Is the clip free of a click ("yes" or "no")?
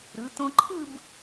no